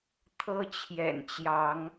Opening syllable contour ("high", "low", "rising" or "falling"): high